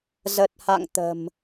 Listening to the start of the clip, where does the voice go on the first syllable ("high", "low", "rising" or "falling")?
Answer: low